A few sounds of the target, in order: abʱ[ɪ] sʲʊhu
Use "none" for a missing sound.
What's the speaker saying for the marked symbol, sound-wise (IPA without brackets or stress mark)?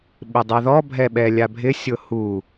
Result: ɪ